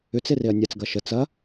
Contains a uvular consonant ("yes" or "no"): no